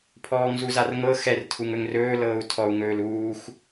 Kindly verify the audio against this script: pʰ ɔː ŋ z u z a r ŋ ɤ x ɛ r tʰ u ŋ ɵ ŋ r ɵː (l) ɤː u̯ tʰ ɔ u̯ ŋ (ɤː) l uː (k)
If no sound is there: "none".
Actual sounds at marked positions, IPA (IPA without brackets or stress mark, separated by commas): l, ɵː, x